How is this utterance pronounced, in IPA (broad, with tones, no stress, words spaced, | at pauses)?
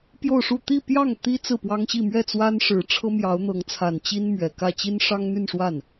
pjo˥˧ʊ̯ʂu˥˧ t̪i˥˧pjɑ˥˩ŋ t̪i˥ t͡sɹ̩˥˩pwɑ˥ŋɕi˥˧ mɥɛ˥˩t͡swa˥nʂɻ̩˨˩ ʈ͡ʂʰɤ˥mjɑ˧˥ʊ̯n̪ɤ˧˥ŋt͡sʰa˨˩n t͡ɕi˥nmɥɛ˨˩kä˥˩ t͡ɕi˥nʂɑ˥ŋn̪y˥˧nʂwa˥˩n